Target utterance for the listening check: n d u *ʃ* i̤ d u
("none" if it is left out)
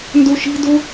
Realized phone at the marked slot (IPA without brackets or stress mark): ʃ